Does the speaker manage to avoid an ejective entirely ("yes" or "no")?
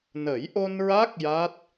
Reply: yes